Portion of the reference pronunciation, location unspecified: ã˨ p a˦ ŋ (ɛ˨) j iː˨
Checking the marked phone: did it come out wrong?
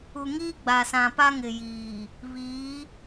yes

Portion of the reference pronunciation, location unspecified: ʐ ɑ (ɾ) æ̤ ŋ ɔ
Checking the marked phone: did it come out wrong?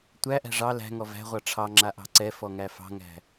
yes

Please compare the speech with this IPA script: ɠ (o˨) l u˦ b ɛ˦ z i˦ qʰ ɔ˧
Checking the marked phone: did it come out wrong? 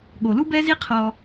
no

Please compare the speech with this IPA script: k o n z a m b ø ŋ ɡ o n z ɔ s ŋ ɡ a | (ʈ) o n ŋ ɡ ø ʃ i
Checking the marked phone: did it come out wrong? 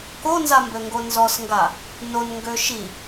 yes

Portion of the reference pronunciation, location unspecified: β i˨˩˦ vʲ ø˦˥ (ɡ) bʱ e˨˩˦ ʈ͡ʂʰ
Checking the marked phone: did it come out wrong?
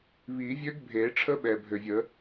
no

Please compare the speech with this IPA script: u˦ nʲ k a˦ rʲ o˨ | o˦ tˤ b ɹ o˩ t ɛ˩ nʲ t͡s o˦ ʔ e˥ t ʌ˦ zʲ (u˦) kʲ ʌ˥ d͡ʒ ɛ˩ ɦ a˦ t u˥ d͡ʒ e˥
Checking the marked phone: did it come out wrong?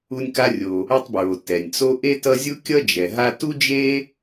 yes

